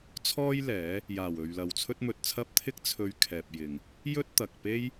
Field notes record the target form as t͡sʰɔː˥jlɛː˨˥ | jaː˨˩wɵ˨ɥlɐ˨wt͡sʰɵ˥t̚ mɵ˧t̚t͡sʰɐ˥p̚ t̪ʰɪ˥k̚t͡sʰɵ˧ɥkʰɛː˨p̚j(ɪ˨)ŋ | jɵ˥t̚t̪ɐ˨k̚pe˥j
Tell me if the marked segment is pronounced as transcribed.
yes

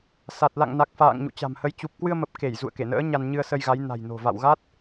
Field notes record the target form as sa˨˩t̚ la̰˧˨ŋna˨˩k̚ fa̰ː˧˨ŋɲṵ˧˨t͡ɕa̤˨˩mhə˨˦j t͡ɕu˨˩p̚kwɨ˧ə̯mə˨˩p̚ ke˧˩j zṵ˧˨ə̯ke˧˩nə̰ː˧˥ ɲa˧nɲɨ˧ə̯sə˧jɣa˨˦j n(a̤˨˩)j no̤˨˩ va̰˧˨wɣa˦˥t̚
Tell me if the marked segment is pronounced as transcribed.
yes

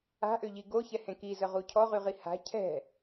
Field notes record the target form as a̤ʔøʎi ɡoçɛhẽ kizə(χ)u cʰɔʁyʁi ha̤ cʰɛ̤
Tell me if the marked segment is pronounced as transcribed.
no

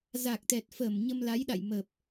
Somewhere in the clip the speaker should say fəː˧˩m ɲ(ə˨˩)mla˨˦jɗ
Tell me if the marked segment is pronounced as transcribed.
no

